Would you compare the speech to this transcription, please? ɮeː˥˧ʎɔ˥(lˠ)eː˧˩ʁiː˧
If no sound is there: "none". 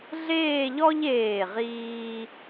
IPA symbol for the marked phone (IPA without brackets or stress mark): ʎ